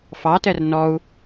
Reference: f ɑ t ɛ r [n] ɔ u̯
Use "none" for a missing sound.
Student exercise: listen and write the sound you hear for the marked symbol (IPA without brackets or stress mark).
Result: n